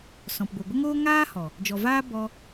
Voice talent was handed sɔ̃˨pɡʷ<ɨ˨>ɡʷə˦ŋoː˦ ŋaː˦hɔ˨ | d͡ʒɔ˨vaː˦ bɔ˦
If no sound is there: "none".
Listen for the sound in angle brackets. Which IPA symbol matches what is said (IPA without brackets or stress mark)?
ɨ˨